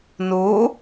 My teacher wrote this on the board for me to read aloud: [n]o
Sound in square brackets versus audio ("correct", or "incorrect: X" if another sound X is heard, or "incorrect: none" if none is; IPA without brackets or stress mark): correct